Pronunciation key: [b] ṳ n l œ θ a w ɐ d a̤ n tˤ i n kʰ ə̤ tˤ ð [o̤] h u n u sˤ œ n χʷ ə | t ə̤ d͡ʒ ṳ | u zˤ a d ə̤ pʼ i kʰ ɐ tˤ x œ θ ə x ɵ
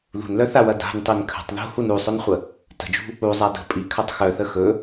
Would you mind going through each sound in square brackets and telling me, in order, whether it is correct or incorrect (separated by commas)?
incorrect, incorrect